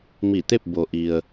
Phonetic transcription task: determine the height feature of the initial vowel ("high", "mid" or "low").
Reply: high